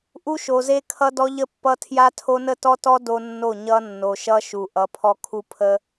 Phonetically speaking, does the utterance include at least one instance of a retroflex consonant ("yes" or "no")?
no